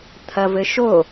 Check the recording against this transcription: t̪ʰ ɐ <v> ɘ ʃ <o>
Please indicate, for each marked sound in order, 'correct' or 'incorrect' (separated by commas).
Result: correct, correct